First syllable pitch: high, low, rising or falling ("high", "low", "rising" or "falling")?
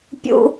high